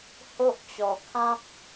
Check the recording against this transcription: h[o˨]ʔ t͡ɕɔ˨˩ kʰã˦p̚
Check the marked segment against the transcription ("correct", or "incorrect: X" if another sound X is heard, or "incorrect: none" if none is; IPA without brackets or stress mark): incorrect: o˦